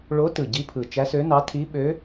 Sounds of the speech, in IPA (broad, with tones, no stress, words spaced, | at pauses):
ɭo˧˥tɯ˨˩ ɟi˧˥pʰɯ˨˩ t͡ʃæ˧˥sø˧˥nɑ˧˥ tʰi˧˥ɓø˧˥